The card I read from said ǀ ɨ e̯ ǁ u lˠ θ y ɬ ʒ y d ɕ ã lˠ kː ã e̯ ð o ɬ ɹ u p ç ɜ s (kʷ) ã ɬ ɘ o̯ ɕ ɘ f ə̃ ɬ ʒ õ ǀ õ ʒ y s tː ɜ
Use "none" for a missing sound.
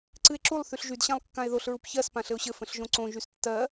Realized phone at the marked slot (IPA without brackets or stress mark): p